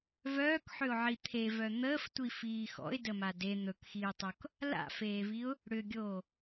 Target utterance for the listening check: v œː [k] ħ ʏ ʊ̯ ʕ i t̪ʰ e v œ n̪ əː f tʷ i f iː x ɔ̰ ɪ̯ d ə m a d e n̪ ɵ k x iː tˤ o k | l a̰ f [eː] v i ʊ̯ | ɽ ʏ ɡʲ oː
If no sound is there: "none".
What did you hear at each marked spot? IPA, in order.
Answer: k, eː

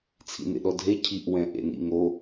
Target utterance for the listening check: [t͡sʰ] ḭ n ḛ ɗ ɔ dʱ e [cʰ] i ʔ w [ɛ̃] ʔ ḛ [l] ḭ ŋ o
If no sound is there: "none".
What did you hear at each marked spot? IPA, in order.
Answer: t͡sʰ, cʰ, ɛ̃, n

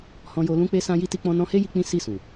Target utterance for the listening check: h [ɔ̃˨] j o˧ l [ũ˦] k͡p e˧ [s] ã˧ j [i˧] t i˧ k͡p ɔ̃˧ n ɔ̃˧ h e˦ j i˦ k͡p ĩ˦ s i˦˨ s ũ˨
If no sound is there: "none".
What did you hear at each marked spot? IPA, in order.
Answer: ɔ̃˧, ũ˧, s, i˧

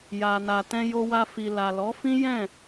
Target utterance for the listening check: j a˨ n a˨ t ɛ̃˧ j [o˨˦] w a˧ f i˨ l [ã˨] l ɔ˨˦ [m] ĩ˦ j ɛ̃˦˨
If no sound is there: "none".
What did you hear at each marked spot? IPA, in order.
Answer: o˧, a˨, f

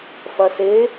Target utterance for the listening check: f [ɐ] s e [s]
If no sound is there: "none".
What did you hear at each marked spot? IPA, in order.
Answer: ɐ, none

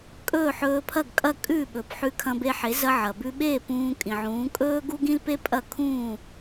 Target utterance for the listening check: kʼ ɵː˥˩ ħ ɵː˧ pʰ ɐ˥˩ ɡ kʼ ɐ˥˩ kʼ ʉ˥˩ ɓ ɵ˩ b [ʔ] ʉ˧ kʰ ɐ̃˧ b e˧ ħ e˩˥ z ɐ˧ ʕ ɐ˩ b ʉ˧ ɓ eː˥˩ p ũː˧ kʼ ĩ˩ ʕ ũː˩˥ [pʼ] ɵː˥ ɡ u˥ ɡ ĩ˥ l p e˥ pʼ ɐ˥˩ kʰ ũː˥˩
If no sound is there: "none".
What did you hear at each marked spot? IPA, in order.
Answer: ħ, kʼ

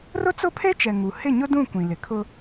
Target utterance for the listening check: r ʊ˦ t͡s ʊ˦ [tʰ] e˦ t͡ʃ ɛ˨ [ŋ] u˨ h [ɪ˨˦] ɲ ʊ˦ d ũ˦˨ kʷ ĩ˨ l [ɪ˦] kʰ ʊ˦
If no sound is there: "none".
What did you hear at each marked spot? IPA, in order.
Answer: pʰ, ŋ, ɪ˦˨, ɪ˨

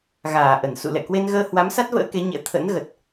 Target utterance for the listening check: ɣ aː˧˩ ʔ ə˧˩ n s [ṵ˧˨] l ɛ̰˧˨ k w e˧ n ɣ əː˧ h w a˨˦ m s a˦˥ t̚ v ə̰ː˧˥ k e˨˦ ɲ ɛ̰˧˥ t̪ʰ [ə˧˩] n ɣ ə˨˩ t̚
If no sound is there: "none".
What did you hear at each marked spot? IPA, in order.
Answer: ṵ˧˨, ə̰˧˥

